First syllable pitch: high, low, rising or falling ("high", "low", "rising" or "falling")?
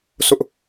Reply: high